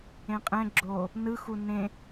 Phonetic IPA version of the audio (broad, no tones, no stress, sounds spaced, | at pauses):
ẽ qʼ ɛ̃ ɡ͡ǁ oː | n ɯ x u n ẽ